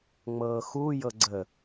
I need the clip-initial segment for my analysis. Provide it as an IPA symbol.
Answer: ŋ͡m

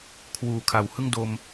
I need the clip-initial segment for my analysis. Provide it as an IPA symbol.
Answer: kʰ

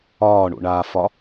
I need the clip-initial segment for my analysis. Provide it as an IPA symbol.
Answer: ɒː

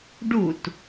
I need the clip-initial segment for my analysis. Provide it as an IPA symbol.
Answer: ɖ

